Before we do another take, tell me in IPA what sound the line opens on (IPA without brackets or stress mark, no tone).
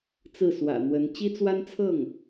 t͡s